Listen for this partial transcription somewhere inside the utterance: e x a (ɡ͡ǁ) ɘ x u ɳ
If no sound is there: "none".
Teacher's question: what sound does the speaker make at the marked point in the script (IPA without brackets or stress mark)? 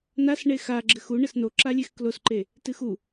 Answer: ɡ͡ǁ